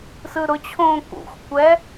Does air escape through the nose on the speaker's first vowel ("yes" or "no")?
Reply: no